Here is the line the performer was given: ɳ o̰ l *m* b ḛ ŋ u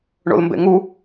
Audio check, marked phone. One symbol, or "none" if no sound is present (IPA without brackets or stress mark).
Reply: m